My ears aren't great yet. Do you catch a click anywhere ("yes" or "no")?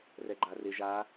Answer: yes